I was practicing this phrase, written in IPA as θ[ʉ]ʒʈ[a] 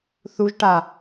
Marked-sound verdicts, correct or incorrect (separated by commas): incorrect, correct